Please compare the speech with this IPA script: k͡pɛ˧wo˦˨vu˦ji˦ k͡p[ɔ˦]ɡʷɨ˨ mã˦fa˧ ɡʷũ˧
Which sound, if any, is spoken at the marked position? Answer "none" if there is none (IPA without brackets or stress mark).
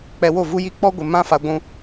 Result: ɔ˦